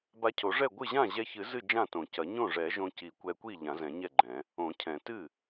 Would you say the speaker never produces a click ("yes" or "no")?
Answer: no